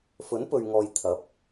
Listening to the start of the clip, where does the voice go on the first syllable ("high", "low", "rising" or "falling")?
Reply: rising